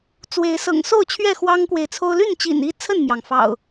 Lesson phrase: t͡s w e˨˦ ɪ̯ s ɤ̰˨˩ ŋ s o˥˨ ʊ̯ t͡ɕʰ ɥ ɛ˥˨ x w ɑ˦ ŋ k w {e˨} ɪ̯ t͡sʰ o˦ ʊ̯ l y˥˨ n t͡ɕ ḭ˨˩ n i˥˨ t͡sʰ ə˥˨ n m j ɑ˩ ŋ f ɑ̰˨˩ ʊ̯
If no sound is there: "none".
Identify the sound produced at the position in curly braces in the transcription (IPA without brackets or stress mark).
e˨